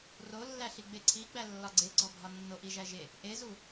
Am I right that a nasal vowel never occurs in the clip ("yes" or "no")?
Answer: yes